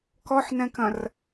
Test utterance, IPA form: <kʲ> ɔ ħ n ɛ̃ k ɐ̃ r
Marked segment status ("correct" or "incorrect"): incorrect